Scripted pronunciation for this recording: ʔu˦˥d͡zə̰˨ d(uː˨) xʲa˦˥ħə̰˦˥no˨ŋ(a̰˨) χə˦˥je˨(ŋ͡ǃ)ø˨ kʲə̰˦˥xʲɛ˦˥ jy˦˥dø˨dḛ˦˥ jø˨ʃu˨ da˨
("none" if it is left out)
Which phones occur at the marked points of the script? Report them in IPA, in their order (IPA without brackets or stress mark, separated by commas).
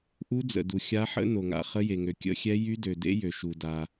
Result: u˨, a̰˨, ŋ